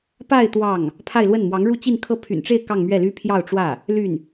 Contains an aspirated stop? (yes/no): yes